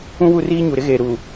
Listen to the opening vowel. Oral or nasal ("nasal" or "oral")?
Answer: nasal